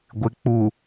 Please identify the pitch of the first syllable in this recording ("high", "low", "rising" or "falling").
low